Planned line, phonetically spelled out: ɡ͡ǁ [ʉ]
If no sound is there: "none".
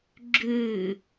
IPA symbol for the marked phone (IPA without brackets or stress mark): ʉ